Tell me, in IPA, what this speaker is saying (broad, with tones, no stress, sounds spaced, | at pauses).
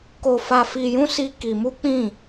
k o˧ f a˧ f i˧ j ũ˦ s i˦ k i˧ m u˦ k͡p ĩ˦˨